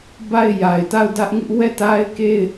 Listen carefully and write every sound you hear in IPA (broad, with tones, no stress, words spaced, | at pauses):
ba˦˨ɪ̯ja˨ɪ̯ ta˦˨ʊ̯dä˦ʔŋɪ˦ʔ wɛ˦˨ta˦ɪ̯ ke˦˨ɪ̯